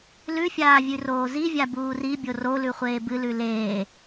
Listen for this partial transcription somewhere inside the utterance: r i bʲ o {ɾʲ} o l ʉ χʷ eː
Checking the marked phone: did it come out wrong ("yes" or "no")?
yes